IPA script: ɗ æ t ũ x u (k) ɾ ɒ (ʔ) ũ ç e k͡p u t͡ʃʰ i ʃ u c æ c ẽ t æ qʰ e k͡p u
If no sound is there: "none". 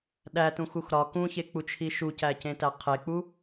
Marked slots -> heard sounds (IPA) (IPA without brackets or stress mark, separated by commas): x, k